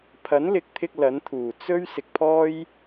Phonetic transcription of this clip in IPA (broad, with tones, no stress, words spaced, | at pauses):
pʰɐ˨˥nlɪ˨˥k̚t̪ʰɪ˧k̚ lɐ˨˥nt̪ʰuː˨˩ t͡sɵ˥ɥ sɪ˨k̚pʰɔː˥j